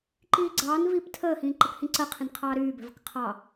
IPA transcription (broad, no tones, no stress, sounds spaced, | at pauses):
ǃ iː ɡ͡ǀ ɑː n v iː p tʰ əː h ĩː ǃ ə k h ĩ ǀ ɜ qʰ ĩ n qʰ ɑː ɾ yː b ɛ̤ v ə̤ k qʰ ɑ